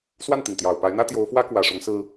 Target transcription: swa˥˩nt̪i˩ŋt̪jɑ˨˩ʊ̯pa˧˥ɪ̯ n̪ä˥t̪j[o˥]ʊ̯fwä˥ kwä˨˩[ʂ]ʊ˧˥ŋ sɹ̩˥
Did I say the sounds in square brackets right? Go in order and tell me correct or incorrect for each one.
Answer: incorrect: o˧˥, correct

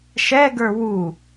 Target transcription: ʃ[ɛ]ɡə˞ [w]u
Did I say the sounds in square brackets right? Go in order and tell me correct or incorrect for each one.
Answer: correct, correct

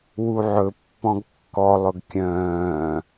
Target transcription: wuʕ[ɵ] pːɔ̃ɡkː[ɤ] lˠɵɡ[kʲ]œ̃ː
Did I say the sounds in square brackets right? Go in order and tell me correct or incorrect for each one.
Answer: correct, incorrect: ɔ, correct

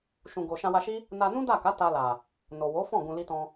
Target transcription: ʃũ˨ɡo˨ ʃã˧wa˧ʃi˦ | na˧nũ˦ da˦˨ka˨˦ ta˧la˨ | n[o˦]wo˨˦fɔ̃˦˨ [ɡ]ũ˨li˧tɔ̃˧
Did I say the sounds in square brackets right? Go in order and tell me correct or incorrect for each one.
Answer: incorrect: o˨, correct

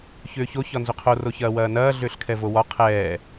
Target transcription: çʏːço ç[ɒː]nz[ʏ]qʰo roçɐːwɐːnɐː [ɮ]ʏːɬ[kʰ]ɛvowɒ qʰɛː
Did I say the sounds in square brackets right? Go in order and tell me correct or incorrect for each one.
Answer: incorrect: ɒ, correct, correct, correct

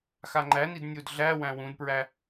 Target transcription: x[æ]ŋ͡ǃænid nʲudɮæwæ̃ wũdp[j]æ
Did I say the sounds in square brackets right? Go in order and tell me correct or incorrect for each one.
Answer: incorrect: a, incorrect: ɹ

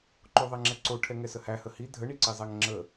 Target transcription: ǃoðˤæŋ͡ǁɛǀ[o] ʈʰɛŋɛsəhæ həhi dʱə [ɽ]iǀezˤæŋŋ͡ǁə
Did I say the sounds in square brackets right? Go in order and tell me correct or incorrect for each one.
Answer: correct, incorrect: ɳ

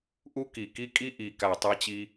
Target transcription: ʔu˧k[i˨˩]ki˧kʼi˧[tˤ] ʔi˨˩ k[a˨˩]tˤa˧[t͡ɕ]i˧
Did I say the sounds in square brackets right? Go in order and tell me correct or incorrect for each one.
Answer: correct, incorrect: none, correct, correct

